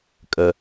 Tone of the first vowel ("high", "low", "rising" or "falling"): low